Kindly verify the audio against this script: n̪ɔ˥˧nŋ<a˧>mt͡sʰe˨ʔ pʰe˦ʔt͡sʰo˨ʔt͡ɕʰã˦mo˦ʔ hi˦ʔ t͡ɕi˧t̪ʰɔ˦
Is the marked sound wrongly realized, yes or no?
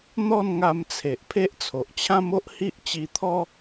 no